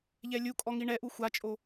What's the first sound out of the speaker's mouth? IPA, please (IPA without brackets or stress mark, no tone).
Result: ʎ